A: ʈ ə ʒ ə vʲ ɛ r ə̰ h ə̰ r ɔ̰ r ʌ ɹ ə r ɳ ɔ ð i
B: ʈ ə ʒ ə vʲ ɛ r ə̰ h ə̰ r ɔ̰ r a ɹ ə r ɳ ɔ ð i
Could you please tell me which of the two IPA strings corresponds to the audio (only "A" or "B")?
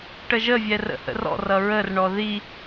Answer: A